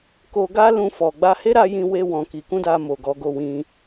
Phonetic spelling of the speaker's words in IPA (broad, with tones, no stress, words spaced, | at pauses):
ko˧ɡa˦ lũ˧fɔ˨ ɡ͡ba˧he˦ɾa˧ jĩ˧we˧wɔ̃˨ ki˧ kũ˦da˧ mo˨ɡɔ˨˦ ɡo˧wĩ˧